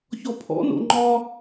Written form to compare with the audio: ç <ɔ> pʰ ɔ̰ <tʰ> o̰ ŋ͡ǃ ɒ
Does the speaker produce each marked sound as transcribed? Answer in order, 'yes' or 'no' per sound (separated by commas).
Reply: yes, no